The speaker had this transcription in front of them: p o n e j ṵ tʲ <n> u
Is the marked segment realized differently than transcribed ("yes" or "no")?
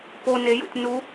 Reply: no